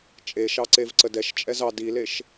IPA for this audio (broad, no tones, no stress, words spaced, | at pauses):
t͡ʃʼeʃɑǀev ǀədɛʃ t͡ʃʼɛzɑ dileʃ